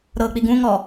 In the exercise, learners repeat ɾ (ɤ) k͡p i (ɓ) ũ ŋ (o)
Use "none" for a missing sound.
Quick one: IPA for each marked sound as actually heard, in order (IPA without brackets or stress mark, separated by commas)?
ɤ, ɡ, ɔ